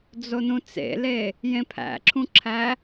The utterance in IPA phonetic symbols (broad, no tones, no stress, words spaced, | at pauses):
d͡zonũt͡sḛle | jẽpʰæ̰ǁʰũǁʰæ